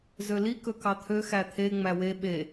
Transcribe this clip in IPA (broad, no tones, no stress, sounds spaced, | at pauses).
z ø l i k ɵ k ɑ t̪ʰ ø x æ t̪ʰ e ŋ͡m æ w e ɓ e